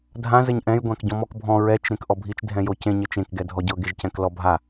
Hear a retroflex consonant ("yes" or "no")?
no